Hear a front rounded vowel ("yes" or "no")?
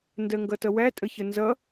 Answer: no